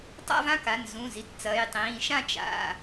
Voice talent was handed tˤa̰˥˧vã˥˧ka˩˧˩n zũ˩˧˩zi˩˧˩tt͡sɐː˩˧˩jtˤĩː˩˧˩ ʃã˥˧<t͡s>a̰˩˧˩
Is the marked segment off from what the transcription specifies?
yes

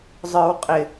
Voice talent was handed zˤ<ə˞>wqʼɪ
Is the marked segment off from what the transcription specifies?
no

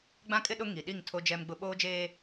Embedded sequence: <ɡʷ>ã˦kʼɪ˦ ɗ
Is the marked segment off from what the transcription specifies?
yes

